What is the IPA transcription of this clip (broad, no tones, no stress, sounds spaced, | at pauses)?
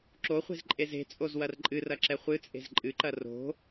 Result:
ǁ o χʷ e̤ z ǃʼ e z e̤ t͡sʼ o z w ɐ r ǃʼ ɨ r ɐ ǁ ɛ χʷ ɨ t͡sʼ e̤ z ǃʼ ɨ ǃ ɐ r o̤